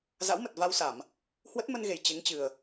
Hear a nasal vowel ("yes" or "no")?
no